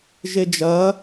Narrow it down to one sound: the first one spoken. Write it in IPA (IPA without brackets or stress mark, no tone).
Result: ʒ